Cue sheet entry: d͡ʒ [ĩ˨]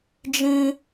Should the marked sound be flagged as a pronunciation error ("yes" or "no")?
yes